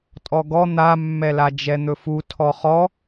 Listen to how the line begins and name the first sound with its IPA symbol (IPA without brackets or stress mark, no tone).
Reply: tʼ